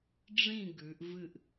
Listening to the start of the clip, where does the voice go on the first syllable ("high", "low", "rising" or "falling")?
falling